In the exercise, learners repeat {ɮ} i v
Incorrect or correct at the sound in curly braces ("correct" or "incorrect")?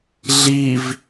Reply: correct